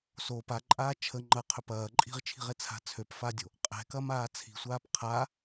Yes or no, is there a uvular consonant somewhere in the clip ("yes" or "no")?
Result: yes